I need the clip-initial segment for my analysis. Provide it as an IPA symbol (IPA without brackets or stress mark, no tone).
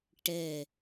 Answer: ʈ